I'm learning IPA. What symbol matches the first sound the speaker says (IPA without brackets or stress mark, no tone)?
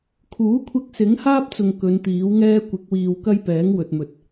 kʰ